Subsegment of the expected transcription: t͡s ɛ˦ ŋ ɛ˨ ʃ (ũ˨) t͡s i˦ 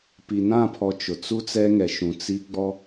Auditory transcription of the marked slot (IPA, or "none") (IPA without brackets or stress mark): ũ˨